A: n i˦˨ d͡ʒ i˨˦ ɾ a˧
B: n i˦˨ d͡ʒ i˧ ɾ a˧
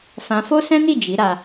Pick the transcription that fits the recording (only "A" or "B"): A